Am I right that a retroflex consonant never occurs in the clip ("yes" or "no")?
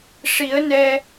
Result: no